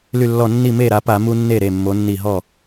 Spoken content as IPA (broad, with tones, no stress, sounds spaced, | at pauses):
l y˧˩ lː ɔ˧˩ nː i˥˩ m e˥˩ ɾ a˩˧ p a˧˩˧ m u˦ nː e˥˩ ɾ e˧˩ mː o˩˧ nː i˧˩ ɦ ɔ˥˩